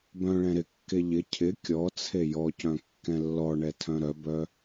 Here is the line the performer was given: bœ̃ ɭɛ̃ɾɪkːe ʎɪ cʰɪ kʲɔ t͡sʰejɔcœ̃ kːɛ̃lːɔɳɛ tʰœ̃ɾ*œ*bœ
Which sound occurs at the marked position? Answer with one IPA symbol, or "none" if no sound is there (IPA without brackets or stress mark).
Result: œ